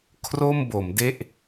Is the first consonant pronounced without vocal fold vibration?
yes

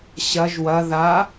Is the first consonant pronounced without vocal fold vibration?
yes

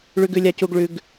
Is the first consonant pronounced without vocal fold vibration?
no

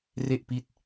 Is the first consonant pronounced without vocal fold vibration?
no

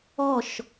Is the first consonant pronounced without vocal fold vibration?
yes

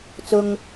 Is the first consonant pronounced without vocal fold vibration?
yes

